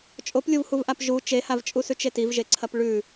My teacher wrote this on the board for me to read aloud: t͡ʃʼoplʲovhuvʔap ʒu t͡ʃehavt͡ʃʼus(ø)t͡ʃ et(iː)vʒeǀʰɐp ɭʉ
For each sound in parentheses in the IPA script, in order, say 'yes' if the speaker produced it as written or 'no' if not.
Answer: no, no

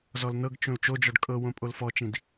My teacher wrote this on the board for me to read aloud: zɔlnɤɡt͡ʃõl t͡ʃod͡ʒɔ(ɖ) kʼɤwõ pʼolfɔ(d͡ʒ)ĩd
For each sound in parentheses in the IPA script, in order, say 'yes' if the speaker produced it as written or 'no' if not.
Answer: yes, no

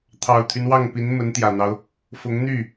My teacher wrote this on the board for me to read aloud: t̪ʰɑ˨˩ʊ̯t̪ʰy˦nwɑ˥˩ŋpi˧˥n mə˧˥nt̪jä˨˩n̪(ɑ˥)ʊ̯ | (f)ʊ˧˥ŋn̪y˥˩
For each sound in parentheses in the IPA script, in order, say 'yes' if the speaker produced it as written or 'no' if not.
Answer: no, yes

